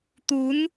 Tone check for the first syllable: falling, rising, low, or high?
rising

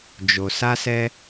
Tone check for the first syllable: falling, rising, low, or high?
low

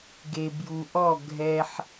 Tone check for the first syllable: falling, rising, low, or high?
low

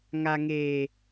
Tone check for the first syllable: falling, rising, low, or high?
low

